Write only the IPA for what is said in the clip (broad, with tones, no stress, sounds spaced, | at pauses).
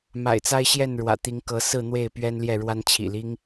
m a̰˨˩ ɪ̯ t͡s a˦ ɪ̯ ɕ j ɛ˥˨ n ɻ w ä̰˨˩ t̪ i˨˦ ŋ k ɤ˨˦ s ɹ̩˥˨ n̪ w e˥˨ ɪ̯ p ɥ ɛ˦ n l j ɛ˥˨ ɻ w a˦ n t͡ɕʰ ḭ˨˩ l i˦ ŋ